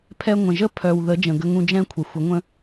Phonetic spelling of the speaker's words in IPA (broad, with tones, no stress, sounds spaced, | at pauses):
pʰ ɛ˧ ŋʷ ə̃˨ ʒ ə˦ pʰ œ˨ w ð ə˨˦ d͡ʒ ə̃˨ ɡ ə˧ ŋ ũ˧ d͡ʒ ɛ̃˦ kʷʰ ə˨ xʷ ə˨˦ ŋʷ ə̃˦